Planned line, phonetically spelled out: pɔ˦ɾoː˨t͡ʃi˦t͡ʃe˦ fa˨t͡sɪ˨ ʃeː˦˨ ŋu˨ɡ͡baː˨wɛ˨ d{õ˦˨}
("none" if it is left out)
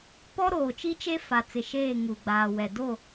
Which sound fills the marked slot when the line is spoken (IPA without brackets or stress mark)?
o˦˨